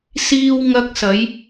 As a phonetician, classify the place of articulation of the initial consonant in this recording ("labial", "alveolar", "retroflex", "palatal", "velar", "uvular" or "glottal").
alveolar